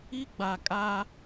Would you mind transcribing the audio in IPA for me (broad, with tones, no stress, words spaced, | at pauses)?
i˦ ɡ͡ba˨kʼa˦